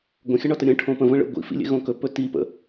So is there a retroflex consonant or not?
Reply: yes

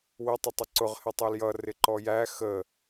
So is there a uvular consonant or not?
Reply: yes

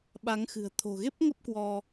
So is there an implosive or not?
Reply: yes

